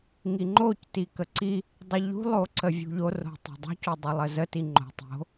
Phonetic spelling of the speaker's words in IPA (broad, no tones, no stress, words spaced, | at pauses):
ŋiŋ͡ǃocti kəǀi | dˤiʎṳlˠoǀə vʲṳʎoro̤ tˤo̤dˤo̤codˤə lˠəzəti ŋ͡ǃo̤ tˤo̤